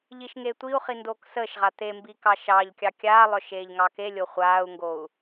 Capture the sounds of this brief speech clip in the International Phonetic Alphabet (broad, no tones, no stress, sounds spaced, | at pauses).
ʎ i ʃ ŋ e tʷ i u̯ χ i n d oː k s əː ʃ ʁ a t̪ e m b i k ɑ ʃ ɑ ʎ kʲ ɑ kʲ aː lˠ œ ʃ eː ʎ ŋ ɑ k e lʲ o χʷ aː u̯ ŋ ɡ o u̯